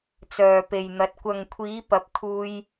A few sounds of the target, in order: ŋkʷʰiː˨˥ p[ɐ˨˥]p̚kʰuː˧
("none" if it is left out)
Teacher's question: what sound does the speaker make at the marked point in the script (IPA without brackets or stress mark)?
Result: ɐ˨˥